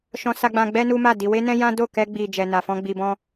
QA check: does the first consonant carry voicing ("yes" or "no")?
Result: no